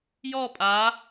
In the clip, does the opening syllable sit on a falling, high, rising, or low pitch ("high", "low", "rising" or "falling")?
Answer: falling